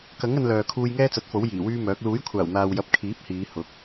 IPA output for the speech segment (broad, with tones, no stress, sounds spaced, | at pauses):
k ɐ˨˥ ŋ ɐ˧ n l œː˨ kʰ uː˧ j ŋ ɛː˥ t͡s ɐ˨˥ t̚ f o˨˥ w j iː˨˩ w yː˥ m œː˨˥ k̚ l uː˨˥ j kʷʰ aː˨˩ w n̪ aː˨ w j ɐ˨˥ p̚ kʰ iː˨˥ p̚ h iː˨˧ h ʊ˨˥ k̚